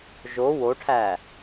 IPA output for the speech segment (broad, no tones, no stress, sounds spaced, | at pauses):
ʒ o w o ʈʰ æ